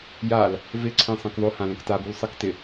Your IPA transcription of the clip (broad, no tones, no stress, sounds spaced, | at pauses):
j a l | v ɪ ǀʰ ẽ sˤ ẽ k ðˤ o h ã l ə̃ k t a b u l sˤ ə k t ɪ